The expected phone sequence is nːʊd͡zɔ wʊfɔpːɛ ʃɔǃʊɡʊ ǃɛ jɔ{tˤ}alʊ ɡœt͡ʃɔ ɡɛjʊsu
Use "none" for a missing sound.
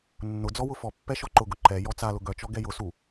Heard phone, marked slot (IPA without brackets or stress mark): t͡s